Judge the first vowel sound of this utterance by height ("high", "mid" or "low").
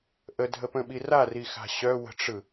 mid